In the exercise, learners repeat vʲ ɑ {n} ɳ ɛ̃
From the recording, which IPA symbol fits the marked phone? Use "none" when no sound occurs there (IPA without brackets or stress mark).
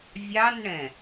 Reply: n